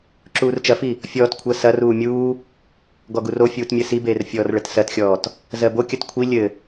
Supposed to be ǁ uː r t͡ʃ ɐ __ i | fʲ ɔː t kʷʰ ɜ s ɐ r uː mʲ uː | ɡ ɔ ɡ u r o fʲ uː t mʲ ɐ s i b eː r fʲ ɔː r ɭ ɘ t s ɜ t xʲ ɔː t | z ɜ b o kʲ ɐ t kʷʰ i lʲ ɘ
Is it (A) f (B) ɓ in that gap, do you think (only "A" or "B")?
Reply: A